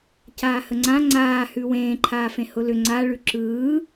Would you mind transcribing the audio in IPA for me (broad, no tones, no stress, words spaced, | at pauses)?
caːhəŋ͡ǀã ŋ͡ǀaːhʉ wẽːǃʰaːfẽ hʊlʏ ŋ͡ǀaɭʉ ǁɯː